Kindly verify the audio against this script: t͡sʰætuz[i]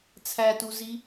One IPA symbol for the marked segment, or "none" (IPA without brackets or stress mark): i